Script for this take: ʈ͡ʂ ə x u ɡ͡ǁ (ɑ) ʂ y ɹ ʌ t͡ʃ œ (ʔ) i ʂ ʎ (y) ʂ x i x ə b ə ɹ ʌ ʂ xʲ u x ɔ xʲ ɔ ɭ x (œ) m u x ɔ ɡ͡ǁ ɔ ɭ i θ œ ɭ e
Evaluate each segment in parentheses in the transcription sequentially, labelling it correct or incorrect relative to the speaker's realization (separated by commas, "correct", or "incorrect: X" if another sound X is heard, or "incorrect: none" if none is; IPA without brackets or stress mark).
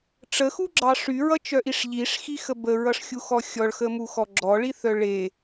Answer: correct, correct, incorrect: i, incorrect: ə